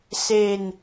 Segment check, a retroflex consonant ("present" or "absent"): absent